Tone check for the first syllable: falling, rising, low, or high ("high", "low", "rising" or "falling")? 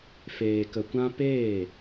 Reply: low